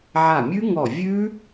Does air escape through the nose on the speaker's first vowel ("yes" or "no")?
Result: no